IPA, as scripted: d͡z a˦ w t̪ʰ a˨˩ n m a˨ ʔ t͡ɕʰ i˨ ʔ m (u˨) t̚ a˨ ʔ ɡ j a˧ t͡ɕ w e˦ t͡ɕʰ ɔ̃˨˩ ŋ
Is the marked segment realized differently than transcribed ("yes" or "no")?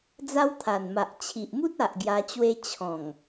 yes